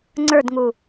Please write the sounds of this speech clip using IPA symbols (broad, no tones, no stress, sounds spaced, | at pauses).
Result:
ŋ͡ǀ ə˞ d ŋ u